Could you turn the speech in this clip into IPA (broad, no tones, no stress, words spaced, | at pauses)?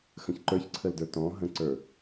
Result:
xə̃çǃə˞çǀʰəldə˞ tɔ̃ ɦə̃ǀə˞